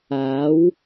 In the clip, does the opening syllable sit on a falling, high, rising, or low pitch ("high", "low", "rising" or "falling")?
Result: rising